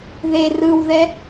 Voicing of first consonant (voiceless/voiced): voiced